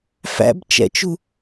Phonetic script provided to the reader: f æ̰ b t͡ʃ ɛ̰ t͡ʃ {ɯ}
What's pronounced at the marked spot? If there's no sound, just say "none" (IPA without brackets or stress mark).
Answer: u